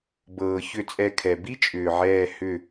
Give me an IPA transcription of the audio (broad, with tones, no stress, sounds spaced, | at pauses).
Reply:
b ɤː˨ ç ʏ˦˨ t͡sʼ ɛ˦˨ kʰ ɛ˨ b i˥ t͡ʃʼ ʏː˨ ʕ ɛː˦˨ h ʏ˦˨